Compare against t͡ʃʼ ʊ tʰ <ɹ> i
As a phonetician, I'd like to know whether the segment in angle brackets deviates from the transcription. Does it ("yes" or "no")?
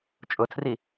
yes